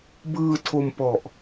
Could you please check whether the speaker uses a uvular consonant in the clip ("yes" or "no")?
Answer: no